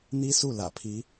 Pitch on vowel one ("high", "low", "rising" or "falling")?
high